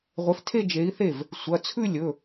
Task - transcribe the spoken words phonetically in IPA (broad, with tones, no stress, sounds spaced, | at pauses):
ʁʷ e˨˥ f tʰ e˥˧ d͡ʒ e˨˥ i̯ θ e˥˩ v | sʷ ɐ˩˧˩ t͡sʰ ʉ˥˧ lʲ ɵ˩˧˩